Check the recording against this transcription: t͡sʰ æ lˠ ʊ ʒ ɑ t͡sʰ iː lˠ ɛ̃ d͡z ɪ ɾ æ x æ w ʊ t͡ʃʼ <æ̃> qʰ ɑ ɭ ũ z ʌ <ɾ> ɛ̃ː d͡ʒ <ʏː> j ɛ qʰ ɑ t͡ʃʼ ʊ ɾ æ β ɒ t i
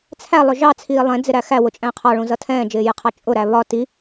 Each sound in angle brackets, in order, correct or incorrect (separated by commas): correct, incorrect, incorrect